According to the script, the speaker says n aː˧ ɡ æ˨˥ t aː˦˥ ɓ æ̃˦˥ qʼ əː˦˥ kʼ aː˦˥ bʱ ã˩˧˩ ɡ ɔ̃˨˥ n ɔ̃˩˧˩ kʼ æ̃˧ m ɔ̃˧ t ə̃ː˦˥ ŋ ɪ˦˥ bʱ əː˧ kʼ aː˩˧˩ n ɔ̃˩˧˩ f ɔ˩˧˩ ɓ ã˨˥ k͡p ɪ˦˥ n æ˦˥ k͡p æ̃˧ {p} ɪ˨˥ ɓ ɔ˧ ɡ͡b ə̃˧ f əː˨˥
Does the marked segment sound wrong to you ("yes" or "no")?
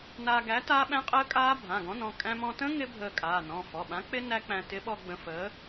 yes